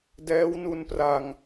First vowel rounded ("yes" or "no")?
no